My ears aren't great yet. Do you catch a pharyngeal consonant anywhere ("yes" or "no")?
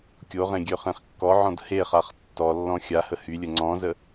yes